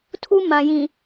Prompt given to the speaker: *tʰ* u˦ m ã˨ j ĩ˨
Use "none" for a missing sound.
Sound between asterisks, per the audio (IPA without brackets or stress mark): tʰ